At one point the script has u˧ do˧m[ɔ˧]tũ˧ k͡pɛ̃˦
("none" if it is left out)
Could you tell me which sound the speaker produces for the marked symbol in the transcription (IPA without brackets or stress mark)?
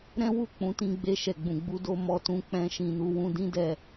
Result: ɔ˧